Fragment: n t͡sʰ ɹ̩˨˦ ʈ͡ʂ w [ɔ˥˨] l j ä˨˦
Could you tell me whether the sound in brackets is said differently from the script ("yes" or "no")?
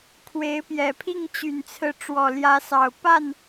yes